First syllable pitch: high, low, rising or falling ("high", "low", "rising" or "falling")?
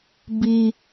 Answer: low